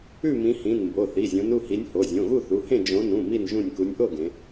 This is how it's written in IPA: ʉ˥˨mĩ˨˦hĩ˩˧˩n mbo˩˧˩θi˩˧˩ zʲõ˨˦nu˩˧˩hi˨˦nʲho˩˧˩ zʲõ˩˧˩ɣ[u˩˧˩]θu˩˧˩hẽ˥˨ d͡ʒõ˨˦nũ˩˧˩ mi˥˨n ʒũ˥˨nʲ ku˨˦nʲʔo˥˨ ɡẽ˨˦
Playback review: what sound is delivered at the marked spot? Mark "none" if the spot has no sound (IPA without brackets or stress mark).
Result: u˥˨